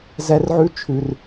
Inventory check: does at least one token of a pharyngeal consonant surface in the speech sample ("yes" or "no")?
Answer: yes